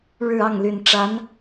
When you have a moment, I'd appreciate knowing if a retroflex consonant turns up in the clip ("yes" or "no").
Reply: yes